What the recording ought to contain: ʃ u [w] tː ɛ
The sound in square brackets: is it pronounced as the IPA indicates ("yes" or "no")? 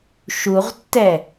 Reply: no